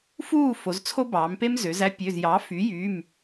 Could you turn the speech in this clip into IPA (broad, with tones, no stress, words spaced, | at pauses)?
fuː˥˨ fo˩˧zt͡sʰo˦bɑː˩˧mpe˦m zø˩˧z æ˦pʲø˩˧˩zjɑ˩˥ fy˩˥jy˩˧˩m